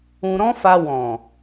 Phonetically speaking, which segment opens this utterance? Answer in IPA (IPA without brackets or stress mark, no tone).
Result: ũ